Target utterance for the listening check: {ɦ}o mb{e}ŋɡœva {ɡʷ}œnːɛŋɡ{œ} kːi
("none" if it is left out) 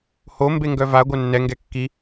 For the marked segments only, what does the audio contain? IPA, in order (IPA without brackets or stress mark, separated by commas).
h, e, ɡʷ, ɛ